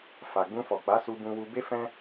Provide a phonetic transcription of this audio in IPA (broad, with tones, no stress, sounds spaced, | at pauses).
f a˨ ɡ͡b ũ˧ f ɔ˨ k͡p a˨˦ s u˧ b ũ˧ w u˧ b e˦ f ɛ̃˦